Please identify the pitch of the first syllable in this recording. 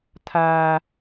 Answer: high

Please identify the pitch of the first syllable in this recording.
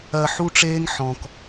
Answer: low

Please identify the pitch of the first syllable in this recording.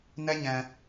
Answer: high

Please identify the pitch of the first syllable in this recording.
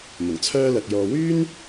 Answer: low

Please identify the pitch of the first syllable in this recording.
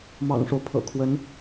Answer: low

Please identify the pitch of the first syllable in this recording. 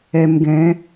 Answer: low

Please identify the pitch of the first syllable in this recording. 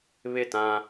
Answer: falling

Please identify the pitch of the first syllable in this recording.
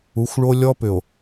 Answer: rising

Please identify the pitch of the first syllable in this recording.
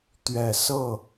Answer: low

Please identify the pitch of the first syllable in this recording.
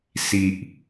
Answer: low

